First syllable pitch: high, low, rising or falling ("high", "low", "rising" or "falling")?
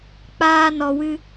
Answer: high